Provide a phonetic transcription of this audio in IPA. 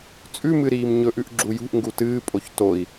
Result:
t͡sʼ ʉ m ɨ ɾ iː m ɲ ɵ ʔ ʉ ʔ ɡ͡ǁ u j ṳ ʔ ŋ ɡ u t ɨː pʼ o ç t o i̯

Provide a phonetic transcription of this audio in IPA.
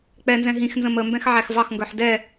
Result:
k͡p ɛ n z ɛ̃ ɦ ĩ x n z ə̃ m ə m b ɛ̃ x ʕ æ x v ɑ x ŋ ɡ ə˞ ħ d ɛ

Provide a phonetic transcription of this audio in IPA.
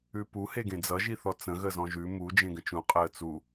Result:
ʉ p u h e ɡ ẽ d͡z ʌ ʒ i θ ɔ t͡s ə̃ ɣ ə z ɔ̃ ʒ ʉ m u d͡ʒ ẽ ɡ ə̃ t͡ʃ ũ qʼ əː t͡s u

